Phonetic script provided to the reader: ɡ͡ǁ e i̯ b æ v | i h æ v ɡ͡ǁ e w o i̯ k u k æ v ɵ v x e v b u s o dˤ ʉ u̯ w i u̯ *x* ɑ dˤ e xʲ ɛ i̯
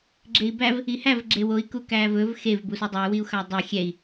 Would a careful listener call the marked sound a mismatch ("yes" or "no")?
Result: no